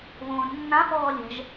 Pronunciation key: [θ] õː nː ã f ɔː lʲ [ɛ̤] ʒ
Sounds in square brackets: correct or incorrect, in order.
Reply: incorrect, correct

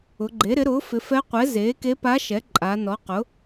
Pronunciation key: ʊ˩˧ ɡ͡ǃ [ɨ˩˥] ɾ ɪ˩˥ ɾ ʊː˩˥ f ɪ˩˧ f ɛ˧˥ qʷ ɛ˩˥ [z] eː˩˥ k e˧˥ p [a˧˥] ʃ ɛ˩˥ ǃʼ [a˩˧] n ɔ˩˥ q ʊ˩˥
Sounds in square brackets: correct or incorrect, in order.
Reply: incorrect, correct, correct, correct

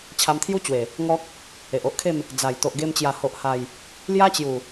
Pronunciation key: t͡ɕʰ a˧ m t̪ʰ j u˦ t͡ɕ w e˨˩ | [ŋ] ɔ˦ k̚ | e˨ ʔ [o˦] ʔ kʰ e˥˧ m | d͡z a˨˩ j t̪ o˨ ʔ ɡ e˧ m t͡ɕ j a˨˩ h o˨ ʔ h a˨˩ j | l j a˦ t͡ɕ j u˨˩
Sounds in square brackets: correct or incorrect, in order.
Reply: correct, correct

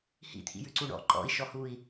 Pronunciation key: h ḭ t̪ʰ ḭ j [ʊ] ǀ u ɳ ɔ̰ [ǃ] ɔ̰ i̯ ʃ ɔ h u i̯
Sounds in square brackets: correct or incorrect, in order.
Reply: incorrect, correct

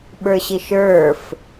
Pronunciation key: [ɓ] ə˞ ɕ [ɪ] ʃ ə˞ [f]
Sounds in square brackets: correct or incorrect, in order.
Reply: correct, correct, correct

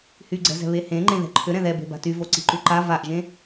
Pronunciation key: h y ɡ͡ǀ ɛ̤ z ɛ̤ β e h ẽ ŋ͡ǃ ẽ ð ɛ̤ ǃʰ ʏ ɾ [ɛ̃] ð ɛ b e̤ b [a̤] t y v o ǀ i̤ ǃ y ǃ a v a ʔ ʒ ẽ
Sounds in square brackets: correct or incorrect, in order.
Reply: correct, correct

